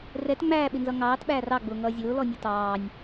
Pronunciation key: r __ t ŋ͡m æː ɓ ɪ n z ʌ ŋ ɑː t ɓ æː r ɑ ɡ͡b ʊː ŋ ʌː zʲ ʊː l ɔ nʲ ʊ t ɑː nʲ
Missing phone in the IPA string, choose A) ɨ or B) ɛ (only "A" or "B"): B